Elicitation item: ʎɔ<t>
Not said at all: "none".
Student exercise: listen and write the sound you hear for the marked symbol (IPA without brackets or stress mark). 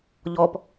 p